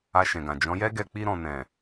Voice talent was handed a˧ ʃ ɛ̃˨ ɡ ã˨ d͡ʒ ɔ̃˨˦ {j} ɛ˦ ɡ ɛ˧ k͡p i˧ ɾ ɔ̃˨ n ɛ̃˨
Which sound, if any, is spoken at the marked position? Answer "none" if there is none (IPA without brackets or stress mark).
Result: j